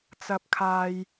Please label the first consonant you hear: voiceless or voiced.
voiceless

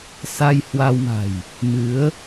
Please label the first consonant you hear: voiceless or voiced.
voiceless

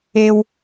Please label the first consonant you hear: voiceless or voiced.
voiced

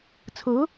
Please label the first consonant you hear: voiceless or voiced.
voiceless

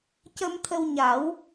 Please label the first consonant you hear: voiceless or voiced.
voiceless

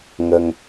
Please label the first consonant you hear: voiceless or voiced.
voiced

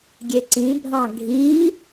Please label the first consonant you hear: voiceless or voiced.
voiced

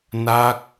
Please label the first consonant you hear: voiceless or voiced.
voiced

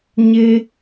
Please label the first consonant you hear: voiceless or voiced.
voiced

